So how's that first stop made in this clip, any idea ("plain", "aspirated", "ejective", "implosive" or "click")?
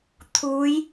aspirated